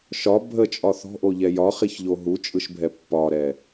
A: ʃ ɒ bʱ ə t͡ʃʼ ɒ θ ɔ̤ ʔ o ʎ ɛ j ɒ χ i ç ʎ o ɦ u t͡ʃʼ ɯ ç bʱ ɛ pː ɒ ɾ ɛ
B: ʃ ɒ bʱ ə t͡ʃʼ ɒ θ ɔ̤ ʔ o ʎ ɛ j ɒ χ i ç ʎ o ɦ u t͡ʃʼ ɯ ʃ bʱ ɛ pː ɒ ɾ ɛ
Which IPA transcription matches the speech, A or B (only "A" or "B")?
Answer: B